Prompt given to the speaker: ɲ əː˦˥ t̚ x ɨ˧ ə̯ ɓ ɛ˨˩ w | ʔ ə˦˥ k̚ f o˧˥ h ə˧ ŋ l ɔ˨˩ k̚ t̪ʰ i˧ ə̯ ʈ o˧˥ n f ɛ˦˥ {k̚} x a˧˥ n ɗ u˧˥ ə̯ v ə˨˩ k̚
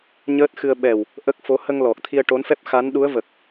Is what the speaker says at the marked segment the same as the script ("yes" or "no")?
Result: no